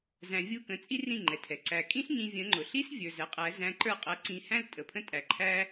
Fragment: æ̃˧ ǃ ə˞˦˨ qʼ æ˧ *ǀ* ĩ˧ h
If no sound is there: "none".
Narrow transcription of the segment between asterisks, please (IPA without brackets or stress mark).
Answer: ǀ